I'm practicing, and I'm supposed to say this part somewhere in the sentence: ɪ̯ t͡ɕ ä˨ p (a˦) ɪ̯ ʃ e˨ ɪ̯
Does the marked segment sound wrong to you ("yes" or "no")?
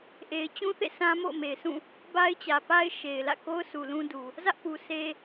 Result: no